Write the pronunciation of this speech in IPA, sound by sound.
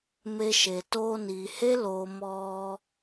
me˧ʃe˨ toː˧niː˨he˦ loː˨ mɔ˧

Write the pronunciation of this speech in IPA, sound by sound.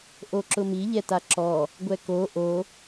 ʔoǁʊmi ʎɛtaǁɔ | ɡʷɛko ʔo

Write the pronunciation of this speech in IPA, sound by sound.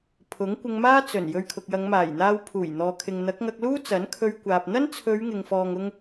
pʰʊ˨˥ŋ kʷɪ˧ŋmaː˥ t͡sɵ˨˩n jɵ˧ɥkʰʊ˨k̚jɐ˨˧ŋmaː˨˩j n̪aː˧w pʰuː˨˩j n̪ɔː˨kʰɪ˨ŋ n̪ɐ˨˥k̚ŋɐ˧k̚luː˥ t͡sɐ˨˥nkʰɵ˧ɥkʷaː˨p̚ n̪ɐ˥nt͡sʰɵ˨˧ɥ ŋɪ˨ŋfɔː˨ŋʊ˧ŋ

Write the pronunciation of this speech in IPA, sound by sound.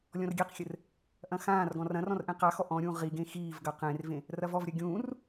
lʲɔ̃rɡʲeqxʲɘr | ʔɐ̃xãːrɡɔ̃ rɐ̃rɔ̃r ʔẽqaxɔ ʔɔ̃ɾʲũː ʁiɡẽ xiːv ɡɐqẽrvẽ | rɐvɔvɾʲɐ ɡʲũːr

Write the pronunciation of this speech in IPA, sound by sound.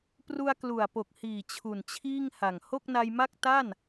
pru˧a̯klu˨˩a̯po˨˩k̚hiː˨˩ t͡ɕʰu˨˩nt͡ɕʰiː˥˩ŋha˨˩ŋ ho˥˩k̚na˧jma˥˩k̚ ta˥˩n

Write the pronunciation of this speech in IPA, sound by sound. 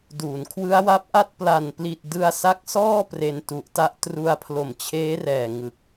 duː˩˦nkʰwɯ˦˥a̯wa˦˥p̚ʔa˥˩t̚ pla˨˩n pli˨˩t̚dɯ˧a̯ sa˦˥k̚sɔː˥˩ pre˧ntu˨˩ʔta˦˥ʔ tru˧a̯pʰlo˨˩mt͡ɕʰeː˦˥rɛː˨˩ ŋɯ˨˩k̚

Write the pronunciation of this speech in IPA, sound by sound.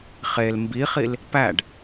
χel mbiχil | pæɖ

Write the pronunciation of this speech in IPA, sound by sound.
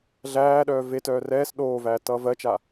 ɮæːɗœː vetœː rɛːs ɗoːvæːtʌː vɜt͡ʃa

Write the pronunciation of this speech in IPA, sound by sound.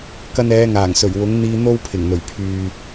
kɐ˧nɛː˨˧ŋaː˨˩ŋ sɵ˨˩ɥwʊ˨˥ŋn̪iː˧ n̪o˥wpʰɪ˨˩ŋn̪ɵ˨˩ɥ pʰyː˨

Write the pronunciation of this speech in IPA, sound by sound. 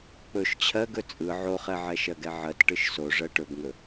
k͡pɵʃ t͡ɕʰɜɡɵ t͡sʼɯ ʕoχɛʕɛ ʃɜɡɛʕɜt ʈɯʃso ʐɜʈɵbŋɵ

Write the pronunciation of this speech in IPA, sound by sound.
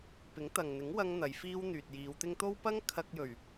pɪ˨˥ŋt̪ɐ˨ŋn̪ɪ˨˥ŋ wɐ˥ŋn̪ɐ˨˧jfiː˥w n̪yː˨t̚jiː˨˧wt̪ɪ˥ŋ t̪o˥w pɐ˥ŋ kʰɐ˧k̚jɵ˨˩ɥ

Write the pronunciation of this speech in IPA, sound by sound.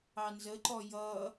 ɑnzəǃɔ jʌ

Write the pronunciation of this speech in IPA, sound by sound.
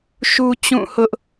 ʃu˦t͡ɕũ˦˨hʊ˦ʔ

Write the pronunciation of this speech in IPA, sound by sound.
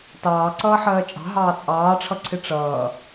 tɑːǀʌːħɜː t͡ʃʼɑ̤ɦɑː t͡sʼɑːʈ͡ʂʰʌǀʰɪ ʈ͡ʂʌː

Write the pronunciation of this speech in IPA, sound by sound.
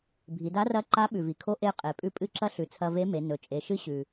bʱi˩˧da˧˥rɐ˧˥ ǃa˧˥ ɓʉ˩vi˩kʰo˧˥ ʔe˧ qʼe˩˧ pʼʉ˧pʼɨ˧˥ǁɐ˧˥ ɬʉ˩˧t͡sʰɐ˧ve˧˥me˩˧ nɵ˩t͡ʃʼe˩˧ʃɨ˧˥ ɕʉ˩

